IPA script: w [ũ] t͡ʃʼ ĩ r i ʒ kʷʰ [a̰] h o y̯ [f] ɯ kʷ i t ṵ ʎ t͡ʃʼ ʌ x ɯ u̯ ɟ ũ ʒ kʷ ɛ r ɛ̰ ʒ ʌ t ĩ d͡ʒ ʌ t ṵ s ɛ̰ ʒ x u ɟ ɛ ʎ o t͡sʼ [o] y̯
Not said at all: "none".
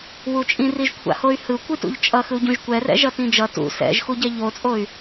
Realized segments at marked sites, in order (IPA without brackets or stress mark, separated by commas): u, a̰, h, o